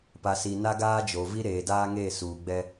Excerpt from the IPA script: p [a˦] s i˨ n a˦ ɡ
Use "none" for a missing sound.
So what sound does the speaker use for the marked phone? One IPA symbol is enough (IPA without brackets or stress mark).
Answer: a˨